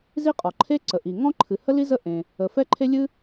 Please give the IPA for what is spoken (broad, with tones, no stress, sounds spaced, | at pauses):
z i˥ qʼ ɔ˩ ǃʰ e˥ ǀ ə˩ ʔ i˩ ŋ ɔ̃˥ ǃʰ ɨ˩ h ə˥ l i˥ z ə˥ ʔ ẽ˩ | ə˩ f ɛ˥ ǃʰ e˥ lʲ ɨ˥